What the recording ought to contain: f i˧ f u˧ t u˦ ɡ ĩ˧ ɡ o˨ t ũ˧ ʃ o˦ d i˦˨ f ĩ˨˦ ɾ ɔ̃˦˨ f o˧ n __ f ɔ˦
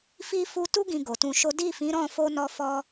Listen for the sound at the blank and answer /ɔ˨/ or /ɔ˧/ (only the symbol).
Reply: ɔ˧